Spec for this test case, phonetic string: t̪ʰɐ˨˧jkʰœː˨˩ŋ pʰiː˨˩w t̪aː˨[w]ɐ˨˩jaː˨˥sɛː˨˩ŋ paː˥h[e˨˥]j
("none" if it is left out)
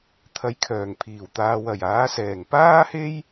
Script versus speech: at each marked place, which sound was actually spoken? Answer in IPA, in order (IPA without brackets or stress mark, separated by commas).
w, e˥